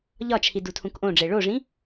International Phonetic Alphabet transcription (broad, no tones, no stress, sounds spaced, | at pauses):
ʎ ɒ t͡ʃʰ i d u tʰ ũ k ʔ õ ɖ͡ʐ e ɭ o ʐ ĩ